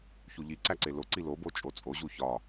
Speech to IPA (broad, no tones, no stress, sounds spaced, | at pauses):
ç u ʎ i ǀ æ ǀ e l o ǀ i l o b o t͡ʃʼ o t͡sʼ o ʑ u ç ɒ